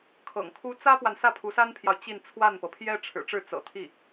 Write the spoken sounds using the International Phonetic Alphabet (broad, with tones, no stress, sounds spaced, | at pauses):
kʰ ɤ̰˨˩ ŋ kʰ u˥ t͡s ä˥ p w a˨ n s ä˥˩ pʰ u˧˥ s a˥ n pʰ j ɑ˨ ʊ̯ t͡ɕ i˥˧ n t͡sʰ w a˥˩ n p ɤ˩ pʰ j ɛ˥ ʈ͡ʂʰ ɻ̩˨˩ ʈ͡ʂ ɻ̩˥˩ t͡s ɤ̰˨˩ t̪ʰ i˥˩